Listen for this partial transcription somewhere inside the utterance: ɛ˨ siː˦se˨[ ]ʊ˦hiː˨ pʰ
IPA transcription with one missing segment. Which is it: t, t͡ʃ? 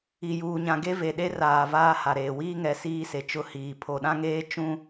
t͡ʃ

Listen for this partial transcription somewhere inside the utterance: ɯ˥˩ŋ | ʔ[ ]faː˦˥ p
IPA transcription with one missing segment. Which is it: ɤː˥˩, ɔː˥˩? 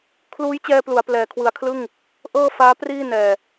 ɤː˥˩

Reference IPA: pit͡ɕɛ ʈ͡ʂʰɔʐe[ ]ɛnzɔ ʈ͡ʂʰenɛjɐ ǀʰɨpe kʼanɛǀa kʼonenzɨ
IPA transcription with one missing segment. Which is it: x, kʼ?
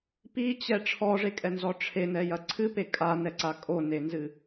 kʼ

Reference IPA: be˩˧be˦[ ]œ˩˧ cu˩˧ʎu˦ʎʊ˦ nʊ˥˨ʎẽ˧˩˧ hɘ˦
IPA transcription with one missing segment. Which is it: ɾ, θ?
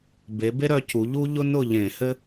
ɾ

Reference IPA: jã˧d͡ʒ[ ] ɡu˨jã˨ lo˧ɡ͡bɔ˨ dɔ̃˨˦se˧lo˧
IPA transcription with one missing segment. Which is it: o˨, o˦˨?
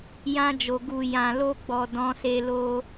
o˨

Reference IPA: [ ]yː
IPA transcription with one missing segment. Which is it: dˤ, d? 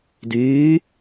d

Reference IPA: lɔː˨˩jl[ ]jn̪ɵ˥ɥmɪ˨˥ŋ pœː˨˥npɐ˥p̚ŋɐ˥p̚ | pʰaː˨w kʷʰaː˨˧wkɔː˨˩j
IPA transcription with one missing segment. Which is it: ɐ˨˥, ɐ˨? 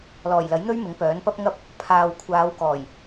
ɐ˨˥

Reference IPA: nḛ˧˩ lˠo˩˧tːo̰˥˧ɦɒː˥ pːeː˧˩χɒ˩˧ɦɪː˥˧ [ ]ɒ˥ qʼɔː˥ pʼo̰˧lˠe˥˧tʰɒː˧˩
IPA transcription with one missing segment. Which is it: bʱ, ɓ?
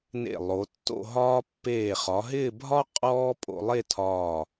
bʱ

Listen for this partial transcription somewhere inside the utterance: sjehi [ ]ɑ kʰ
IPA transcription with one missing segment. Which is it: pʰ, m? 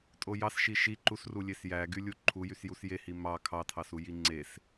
m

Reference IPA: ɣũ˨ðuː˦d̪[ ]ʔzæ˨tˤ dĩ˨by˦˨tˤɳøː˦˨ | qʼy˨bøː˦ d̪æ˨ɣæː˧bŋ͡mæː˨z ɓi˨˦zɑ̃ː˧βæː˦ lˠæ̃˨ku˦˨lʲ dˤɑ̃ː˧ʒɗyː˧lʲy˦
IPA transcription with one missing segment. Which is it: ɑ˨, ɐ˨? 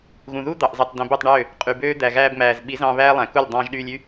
ɑ˨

